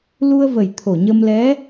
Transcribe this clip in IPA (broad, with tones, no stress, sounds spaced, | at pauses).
l u˧ ə̯ v ə˨˩ j t̪ʰ o˨˩ ɲ ə˧ m l ɛ˧˥